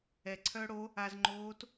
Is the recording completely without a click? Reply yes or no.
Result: no